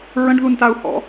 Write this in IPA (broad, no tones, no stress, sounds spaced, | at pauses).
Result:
ɹ ə̃ ɖ ð u n t a u̯ h ɔ̰